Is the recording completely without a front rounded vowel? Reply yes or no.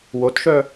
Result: no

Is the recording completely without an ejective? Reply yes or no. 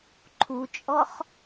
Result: no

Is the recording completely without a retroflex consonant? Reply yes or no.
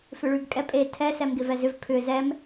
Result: no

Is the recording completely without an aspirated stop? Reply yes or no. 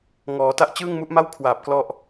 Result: no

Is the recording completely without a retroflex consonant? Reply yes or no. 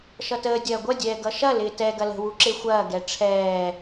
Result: no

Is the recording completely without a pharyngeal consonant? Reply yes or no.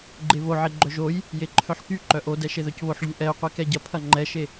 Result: no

